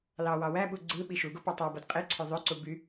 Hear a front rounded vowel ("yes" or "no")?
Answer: yes